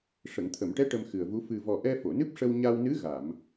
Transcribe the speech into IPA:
ʂ ə˨˩˨ ŋ t̪ʰ ə˨˩˨ m ʈ ɛ˧˥ ʈ ə˧ m x ɨ˨˩ ə̯ v u˧˥ f ɨ˨˩ v ɔ˨˩ ʔ ɛ˧ f o˨˩˨ n ɨ˦˥ p̚ ʂ ə˧ w ɲ a˧ w n ɨ˧˥ ɣ a˨˩˨ m

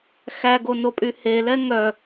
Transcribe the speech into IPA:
x æ ɡ o n o pʼ y h e l ɛ ŋ œ

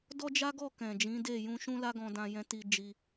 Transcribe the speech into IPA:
d ɔ˦ d͡ʒ a˦ ɡ ɔ˦˨ k ɛ̃˨ d͡ʒ ĩ˨˦ d e˦˨ j ũ˧ ʃ ũ˦ l a˦ ɡ ɔ̃˧ d ã˧ j ɛ̃˧ t i˧ d͡ʒ i˧

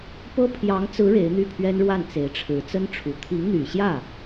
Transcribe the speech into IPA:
p ɤ˥ pʰ j ɑ˧˥ ŋ t͡s ɹ̩˧˥ ɻ e˧˥ ɪ̯ n̪ y˥˩ pʰ ɥ ɛ˥ n ɻ w a˥˩ n t͡s e˧˥ ɪ̯ ʈ͡ʂʰ ɻ̩˧˥ t͡s ə˥ n ʈ͡ʂʰ u˨˩ t̪ʰ i˧˥ ŋ n̪ y˨˩ ɕ j ä˥˩

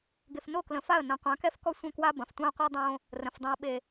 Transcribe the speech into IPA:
ɡ e˨ f n o˦˨ k l ə̃˨ f a˦˨ ə̯ n ɐ̃˨ qʷ ã˨˦ k ɛ˦ f k ɔ˦ sʷ ə̃˦˨ k w a˦ b ɐ̃˨ f tʷ ã˦ ə̯ qʷ ɛ˦ dˤ õ˦ | r ə̃˨ f dˤ õ˨ ə̯ ɓ e˨

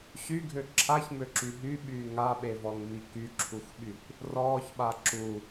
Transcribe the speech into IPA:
ɕ y ɡʱ ø ǁʰ a ç m ø ǁ y ɦ y ɓ yː ŋ a ɓ e v ɔ ŋ m i k y ǁʰ u xʷ ɓ y kʷ | r ɔː ç ɓ a ǁ u

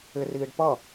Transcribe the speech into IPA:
ɪ r iː ɖ p ʌ

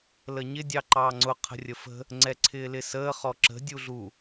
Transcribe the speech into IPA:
l ə ɲ ɪ dʲ ɑ ǃ ɑː ŋ͡ǀ ʊ qʰ ə̤ rʲ ə f ə̤ | ŋ͡ǀ ɛ ǀʰ ɪː l ɪ s əː χ ɔ ǁ ə̤ dʲ u ɮ u

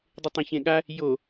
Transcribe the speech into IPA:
dˤ ɪ tˤ ẽ ç ẽ ɠ a | j o

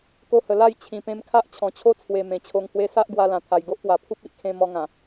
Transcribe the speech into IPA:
k o˧ h ə˨˩ l a˥˧ j t͡ɕʰ ĩ˨˩ p ẽ˧ m kʰ a˦ ʔ t͡ɕʰ ɔ̃˨˩ t͡ɕʰ o˦ t͡sʰ w e˨˩ m ẽ˨˩ t͡ɕʰ o˧ ŋ h w e˦ s a˦ ʔ ɡ w a˧ l ã˨˩ t̪ʰ a˨˩ j ɡ o˦ ʔ p w a˨˩ pʰ u˦ p̚ i˦ ʔ kʰ ẽ˧ m ɔ˧ ŋ ã˨˩

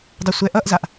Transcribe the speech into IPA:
dˤ o sʷ ɛ ʔ ʌ ʔ z a ʔ

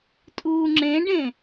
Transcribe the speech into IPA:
tʼ uː ŋ͡ǁ ẽ ɖ ẽ

